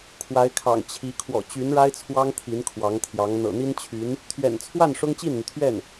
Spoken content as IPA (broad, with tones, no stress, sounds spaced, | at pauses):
kʰ w a˧˥ ɪ̯ kʰ ɑ̰˨˩ ŋ t͡ɕʰ i˧˥ kʰ w ɔ̰˨˩ t͡ɕ y˧˥ n ɻ a˥ ɪ̯ t͡sʰ w ɑ˥ ŋ t̪ʰ i˧˥ n kʰ w ɑ˧˥ ŋ t̪ʰ j ɑ˧˥ ŋ n̪ ɤ̰˨˩ n̪ i˥ n t͡ɕʰ y˧˥ n | t̪ʰ ɥ ɛ̰˨˩ n t͡sʰ w a˥˩ n ʂ ʊ˥ ŋ t͡ɕ i˥˩ n n̪ y˩ t̪ʰ ɥ ɛ˥˩ n